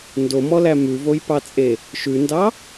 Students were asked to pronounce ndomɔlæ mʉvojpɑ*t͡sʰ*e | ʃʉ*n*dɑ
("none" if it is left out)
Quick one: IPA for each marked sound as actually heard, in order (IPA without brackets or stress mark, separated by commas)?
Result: t͡sʼ, n